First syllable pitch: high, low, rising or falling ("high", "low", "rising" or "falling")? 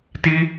high